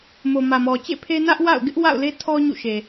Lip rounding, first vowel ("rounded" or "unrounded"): rounded